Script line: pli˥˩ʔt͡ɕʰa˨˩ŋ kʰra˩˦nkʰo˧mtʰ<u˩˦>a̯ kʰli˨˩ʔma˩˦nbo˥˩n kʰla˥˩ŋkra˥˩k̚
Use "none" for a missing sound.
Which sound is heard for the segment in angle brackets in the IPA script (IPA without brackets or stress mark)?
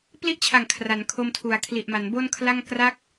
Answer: u˩˦